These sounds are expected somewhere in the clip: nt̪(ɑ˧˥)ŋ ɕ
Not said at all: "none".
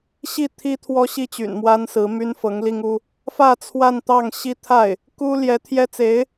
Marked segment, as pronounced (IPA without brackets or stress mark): ɑ˥˩